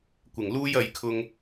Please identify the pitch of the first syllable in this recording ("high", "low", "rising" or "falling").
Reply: low